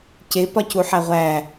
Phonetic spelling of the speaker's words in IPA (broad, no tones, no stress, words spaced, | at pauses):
ce pɒcuħæʁʷæ